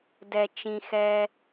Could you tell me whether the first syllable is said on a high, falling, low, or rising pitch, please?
low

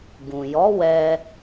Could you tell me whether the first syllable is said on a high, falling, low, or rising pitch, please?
low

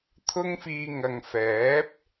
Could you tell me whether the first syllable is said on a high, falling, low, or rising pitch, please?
high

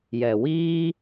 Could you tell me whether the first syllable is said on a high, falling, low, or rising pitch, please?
low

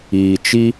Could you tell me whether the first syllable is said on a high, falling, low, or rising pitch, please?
low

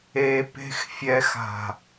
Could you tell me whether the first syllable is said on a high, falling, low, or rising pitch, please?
low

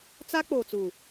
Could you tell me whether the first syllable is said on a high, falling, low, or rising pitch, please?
high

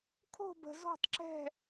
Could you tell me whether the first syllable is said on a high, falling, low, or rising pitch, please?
falling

